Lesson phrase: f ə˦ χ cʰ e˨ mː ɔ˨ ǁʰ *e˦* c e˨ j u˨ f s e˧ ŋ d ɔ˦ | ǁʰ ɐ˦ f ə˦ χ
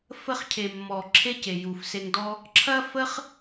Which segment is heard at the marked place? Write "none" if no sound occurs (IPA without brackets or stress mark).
e˦